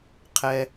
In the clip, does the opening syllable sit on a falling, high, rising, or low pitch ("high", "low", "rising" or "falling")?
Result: low